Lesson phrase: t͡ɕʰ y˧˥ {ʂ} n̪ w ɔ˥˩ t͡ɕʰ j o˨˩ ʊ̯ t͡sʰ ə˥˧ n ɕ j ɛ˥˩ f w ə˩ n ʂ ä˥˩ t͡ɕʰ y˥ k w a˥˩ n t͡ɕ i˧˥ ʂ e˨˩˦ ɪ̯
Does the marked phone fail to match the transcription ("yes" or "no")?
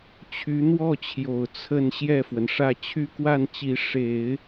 yes